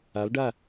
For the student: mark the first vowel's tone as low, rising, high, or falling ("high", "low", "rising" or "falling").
rising